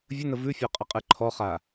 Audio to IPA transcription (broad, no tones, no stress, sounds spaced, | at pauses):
vʲ ə n ə v ʉ fʲ ɔ qʼ ə qʼ ɨ ǃʰ ɔ χ a